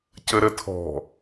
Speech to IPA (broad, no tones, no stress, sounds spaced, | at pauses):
c ə ɾ ə tʰ ɔ̤